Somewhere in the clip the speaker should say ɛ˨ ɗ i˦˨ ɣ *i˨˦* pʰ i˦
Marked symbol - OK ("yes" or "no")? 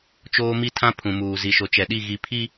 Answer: no